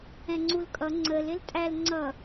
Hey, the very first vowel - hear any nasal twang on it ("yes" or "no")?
yes